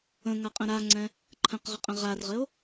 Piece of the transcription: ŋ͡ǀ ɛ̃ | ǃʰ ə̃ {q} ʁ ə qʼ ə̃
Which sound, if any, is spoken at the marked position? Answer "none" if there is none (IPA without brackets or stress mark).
q